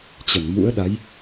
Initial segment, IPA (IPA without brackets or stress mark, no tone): t͡ɕ